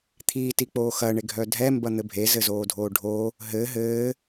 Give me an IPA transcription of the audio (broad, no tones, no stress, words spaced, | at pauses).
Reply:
t̪ʰiːtik͡poː xɐɳeɡʱœ dʱɛmbɐn̪ɘ bʱezɘzoːdʱoː ɖʱoː | ɦɘː ɦɘː